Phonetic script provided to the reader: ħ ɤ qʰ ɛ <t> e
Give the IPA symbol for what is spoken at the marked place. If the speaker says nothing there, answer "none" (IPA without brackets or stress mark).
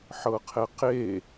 q